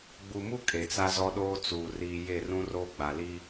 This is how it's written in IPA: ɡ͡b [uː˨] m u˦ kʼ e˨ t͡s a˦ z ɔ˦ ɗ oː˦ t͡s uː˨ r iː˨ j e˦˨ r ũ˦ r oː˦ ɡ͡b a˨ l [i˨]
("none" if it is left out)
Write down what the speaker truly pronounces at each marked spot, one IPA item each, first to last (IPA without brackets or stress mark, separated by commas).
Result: u˨, i˦